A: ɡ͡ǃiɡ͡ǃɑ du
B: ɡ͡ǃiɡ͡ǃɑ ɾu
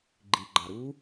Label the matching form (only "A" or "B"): B